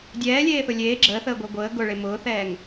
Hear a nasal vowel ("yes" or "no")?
no